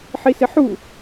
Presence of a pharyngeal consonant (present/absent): present